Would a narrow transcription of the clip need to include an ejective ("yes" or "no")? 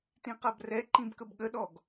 no